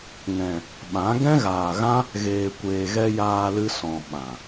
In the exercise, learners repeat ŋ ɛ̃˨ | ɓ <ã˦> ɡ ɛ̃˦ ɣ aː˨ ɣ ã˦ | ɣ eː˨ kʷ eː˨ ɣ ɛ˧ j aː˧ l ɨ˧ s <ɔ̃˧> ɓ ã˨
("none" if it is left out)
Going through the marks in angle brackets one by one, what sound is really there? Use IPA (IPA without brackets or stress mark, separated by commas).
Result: ã˨˦, ɔ̃˨